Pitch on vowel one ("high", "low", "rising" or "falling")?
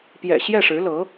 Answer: low